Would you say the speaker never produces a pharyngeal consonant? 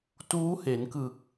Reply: yes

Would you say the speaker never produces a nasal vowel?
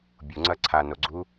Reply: yes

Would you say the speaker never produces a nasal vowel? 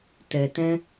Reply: no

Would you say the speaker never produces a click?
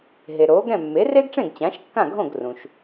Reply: yes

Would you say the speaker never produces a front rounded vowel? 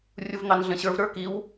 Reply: yes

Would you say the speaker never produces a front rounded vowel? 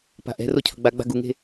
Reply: yes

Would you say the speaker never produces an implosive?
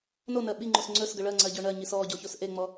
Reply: no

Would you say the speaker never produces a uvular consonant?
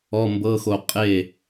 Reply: no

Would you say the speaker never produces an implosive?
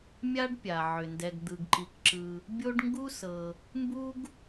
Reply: yes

